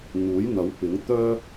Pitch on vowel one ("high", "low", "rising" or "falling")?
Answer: rising